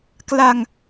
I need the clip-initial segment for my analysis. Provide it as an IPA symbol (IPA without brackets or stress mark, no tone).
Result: k